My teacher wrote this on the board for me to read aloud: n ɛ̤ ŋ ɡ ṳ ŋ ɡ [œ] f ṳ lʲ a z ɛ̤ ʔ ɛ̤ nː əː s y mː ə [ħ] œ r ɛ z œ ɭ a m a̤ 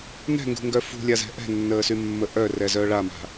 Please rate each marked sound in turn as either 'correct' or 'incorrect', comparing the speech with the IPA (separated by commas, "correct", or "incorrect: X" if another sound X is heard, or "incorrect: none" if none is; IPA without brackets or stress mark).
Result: correct, incorrect: ʔ